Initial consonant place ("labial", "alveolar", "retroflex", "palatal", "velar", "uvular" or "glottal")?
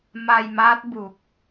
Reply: labial